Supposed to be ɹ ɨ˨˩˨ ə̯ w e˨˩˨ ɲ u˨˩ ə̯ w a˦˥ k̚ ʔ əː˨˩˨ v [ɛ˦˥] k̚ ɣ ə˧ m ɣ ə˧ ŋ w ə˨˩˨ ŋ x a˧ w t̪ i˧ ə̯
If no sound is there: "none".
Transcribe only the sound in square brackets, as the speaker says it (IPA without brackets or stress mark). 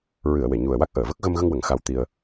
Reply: ə˦˥